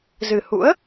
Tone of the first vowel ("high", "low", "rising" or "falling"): low